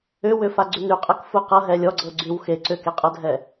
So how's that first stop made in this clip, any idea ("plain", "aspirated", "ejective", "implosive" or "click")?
click